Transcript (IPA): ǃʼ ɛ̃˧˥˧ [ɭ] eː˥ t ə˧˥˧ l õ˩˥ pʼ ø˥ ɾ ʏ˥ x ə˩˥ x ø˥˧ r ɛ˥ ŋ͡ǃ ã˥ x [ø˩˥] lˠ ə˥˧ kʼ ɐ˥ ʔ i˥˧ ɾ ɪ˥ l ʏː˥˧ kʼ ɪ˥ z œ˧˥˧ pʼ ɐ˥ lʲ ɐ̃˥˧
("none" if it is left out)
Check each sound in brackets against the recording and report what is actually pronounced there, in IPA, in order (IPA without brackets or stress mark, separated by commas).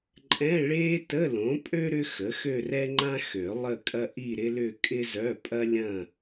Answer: ɭ, ø˨˩˦